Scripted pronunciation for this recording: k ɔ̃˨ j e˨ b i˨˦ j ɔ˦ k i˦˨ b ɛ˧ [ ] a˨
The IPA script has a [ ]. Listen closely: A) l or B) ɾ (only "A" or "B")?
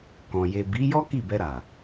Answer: B